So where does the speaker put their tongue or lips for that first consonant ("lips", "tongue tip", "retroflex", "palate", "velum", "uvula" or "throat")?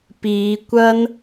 lips